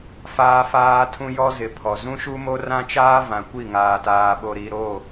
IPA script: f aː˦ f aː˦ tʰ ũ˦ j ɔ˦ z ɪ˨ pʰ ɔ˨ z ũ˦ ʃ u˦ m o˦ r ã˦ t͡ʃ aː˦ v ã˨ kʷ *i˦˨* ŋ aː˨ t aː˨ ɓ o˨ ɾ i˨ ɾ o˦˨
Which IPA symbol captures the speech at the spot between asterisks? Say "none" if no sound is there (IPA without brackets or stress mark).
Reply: i˦˨